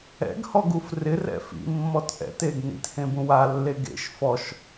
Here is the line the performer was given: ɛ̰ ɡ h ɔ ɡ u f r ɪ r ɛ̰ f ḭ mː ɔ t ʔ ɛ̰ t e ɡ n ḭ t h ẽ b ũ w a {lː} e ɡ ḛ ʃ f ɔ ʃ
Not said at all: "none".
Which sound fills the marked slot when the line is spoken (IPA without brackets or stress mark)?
lː